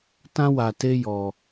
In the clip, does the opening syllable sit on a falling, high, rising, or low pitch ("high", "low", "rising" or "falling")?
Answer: high